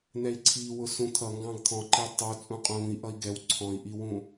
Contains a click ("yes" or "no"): yes